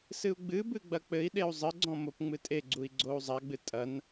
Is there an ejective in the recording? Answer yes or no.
yes